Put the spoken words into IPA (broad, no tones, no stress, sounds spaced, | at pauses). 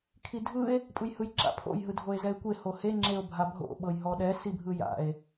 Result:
kʰ i dʱ ɯ e̯ | pʼ ɯ j h ɯ j ǁ a̰ pʰ o̰ j ɦ ɯ dʱ o e̯ z ɛ e̯ kʷ e h o h e ŋ͡ǁ e o̯ bʱ a bʱ o̰ ɓ ɤ j ɦ ɔ ɗ ɛ s i bʱ ɯ j a̰ e̯